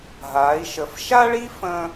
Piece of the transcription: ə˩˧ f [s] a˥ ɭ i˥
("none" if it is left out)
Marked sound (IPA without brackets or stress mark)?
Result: ʃ